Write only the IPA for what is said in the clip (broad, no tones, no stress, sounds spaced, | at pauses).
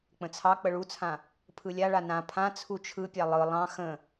k͡p ə̃ t͡sʰ ɑ k͡p ə ɭ u t͡sʰ ã | pʰ ɯ lʲ a ɭ a n ã pʰ ã t͡sʰ u t͡ʃʰ ɯ pʲ ɑ lˠ ɯ lˠ ɑ̃ x ə̃